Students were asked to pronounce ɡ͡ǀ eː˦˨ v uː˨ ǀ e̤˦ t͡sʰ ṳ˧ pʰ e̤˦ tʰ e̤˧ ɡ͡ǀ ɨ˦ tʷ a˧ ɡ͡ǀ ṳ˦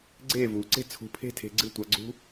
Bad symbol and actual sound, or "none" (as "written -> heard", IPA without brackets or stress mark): none